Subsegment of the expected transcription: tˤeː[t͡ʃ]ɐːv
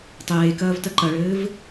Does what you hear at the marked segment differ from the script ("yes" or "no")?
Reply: yes